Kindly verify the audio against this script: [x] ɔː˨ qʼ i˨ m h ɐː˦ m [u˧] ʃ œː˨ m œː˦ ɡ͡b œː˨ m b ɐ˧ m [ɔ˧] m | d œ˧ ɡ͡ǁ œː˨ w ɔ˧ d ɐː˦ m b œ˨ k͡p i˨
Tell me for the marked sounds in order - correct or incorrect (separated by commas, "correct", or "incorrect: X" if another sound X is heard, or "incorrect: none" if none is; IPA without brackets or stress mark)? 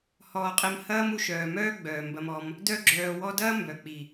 incorrect: h, correct, correct